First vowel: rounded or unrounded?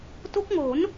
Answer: rounded